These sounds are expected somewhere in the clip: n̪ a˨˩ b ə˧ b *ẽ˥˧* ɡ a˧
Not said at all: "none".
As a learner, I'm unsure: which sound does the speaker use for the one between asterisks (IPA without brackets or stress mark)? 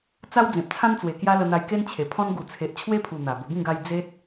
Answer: ĩ˥˧